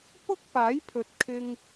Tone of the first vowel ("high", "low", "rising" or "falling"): high